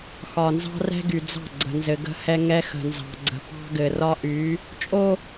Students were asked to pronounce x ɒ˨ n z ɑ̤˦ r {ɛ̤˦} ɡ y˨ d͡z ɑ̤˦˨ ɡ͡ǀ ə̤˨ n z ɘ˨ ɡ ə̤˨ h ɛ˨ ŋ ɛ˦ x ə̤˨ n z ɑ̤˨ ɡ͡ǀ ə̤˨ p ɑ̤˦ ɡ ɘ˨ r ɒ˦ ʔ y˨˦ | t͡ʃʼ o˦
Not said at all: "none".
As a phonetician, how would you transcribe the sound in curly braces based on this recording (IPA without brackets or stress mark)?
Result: ɛ̤˦